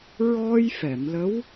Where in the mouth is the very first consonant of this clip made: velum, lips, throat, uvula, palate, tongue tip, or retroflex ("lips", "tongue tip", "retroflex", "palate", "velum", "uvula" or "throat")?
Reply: tongue tip